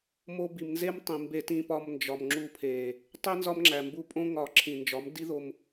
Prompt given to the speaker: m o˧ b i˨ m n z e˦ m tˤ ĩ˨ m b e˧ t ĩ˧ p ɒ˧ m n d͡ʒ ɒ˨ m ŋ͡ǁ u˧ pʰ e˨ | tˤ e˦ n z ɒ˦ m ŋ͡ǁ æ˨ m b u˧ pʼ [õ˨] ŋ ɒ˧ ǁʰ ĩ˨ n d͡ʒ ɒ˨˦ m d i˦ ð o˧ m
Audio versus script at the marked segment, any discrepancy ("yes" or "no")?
yes